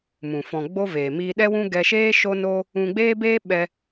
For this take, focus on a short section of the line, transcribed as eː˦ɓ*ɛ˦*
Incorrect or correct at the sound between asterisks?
incorrect: ɛ˧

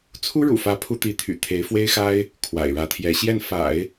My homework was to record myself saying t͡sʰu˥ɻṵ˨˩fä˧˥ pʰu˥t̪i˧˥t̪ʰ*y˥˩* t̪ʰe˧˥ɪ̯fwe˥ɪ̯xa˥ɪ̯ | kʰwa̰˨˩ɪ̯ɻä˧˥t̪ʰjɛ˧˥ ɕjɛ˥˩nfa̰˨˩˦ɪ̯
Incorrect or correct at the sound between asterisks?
incorrect: y̰˨˩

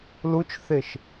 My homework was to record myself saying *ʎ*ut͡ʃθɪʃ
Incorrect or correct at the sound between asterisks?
incorrect: l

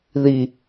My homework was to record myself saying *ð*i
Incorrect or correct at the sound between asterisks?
correct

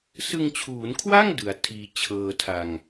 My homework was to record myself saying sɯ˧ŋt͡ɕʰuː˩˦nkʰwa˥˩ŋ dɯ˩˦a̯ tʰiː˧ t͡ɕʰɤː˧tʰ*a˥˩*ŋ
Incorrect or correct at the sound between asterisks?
incorrect: a˧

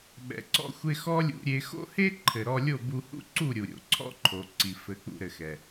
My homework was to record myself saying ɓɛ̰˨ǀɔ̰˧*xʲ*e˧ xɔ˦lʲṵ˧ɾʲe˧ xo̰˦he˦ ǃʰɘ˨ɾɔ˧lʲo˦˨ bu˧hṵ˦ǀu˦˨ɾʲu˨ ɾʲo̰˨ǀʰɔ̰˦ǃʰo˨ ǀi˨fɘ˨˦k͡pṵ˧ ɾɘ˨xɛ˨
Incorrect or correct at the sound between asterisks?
incorrect: xʷ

